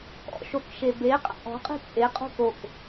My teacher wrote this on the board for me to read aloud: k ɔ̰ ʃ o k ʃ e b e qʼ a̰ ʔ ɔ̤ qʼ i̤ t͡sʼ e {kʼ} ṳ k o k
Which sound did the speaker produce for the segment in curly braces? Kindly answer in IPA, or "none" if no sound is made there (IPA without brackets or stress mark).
qʼ